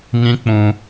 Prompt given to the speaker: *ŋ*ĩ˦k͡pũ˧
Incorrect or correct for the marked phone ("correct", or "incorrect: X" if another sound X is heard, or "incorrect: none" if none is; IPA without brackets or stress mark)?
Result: correct